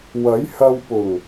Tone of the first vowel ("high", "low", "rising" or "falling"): rising